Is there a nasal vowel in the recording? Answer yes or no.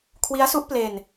no